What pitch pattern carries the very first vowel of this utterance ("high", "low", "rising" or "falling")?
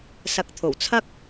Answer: rising